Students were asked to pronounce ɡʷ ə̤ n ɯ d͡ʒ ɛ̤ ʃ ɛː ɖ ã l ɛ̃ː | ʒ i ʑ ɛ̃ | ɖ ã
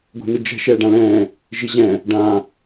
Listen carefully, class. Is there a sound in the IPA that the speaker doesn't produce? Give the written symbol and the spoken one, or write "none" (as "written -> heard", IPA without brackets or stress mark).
ə̤ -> ɛ̤